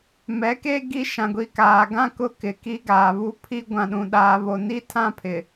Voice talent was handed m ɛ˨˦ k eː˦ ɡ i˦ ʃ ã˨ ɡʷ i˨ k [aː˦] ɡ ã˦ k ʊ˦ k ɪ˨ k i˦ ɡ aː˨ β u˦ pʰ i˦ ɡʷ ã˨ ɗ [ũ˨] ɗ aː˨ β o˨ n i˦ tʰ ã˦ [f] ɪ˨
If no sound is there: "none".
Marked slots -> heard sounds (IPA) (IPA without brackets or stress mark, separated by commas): aː˨, ũ˨, pʰ